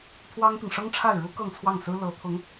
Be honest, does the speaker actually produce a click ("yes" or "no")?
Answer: no